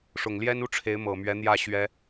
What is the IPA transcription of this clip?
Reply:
ʂʊ˨˩ŋljɛ˥nu˥ ʈ͡ʂʰe˧˥ɪ̯mɤ˨˩mɥɛ˧˥n̪jä˥˩ ɕɥɛ˥

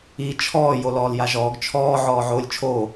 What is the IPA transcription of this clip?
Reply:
i t͡ʃʰɔː jolɔːljaʒɔːɡ t͡ʃʰɔː ʕɔːʕoːlʲt͡ʃʰoː

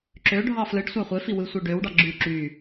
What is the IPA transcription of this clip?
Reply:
ǁø ɖʱɑflɯɖ sʷæχʷefi wɯsʷeɖøwɖɑ ɡ͡ǁy ǁy

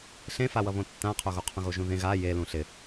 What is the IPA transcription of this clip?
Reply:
ɬẽfawʌ βõtːãqʰoɣo qʰũɣoʒũðẽ ɣa je lũɬɪ

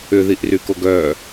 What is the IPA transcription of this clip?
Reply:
ʏðiʔrykoɡ œ

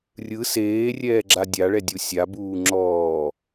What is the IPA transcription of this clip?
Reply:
rʲɯ seːrʲɛːɡ͡ǁa dʲaɭɛdʲu sʲabuː ŋ͡ǁɔː

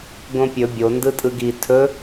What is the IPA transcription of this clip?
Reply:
ɡõpʲɵ bʲo ndɯtʼɯɡi tʰɵ

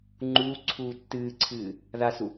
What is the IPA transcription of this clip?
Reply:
ŋ͡ǃuːǀʰuː tːɨːǀʰɨː | ðasu

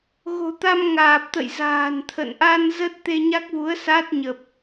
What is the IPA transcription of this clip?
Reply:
ɣo̤˨˩t̪a˧m ŋaː˨˩p̚t̪ə̰˧˨jza̤ː˨˩nt̪ʰə̰˧˨n ʔa˧n zə˦˥t̚t̪e˧ɲa˦˥k̚vu˨˦ə̯ sa˦˥t̚ɲə˨˩p̚

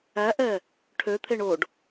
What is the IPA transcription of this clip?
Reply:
æʔɛ | ʈʰøt̪ʰeɳ oɖ

